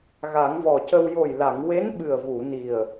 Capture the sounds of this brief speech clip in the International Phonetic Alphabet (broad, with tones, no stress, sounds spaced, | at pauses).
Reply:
ɣ a˨˩˦ ŋ v ɔ˨˩ c ə˧ w j o˨˩ j l a˨˩˨ ŋ w e˧˥ n ɓ ɨ˨˩ ə̯ v u˨˩˨ n i˨˩ ə̯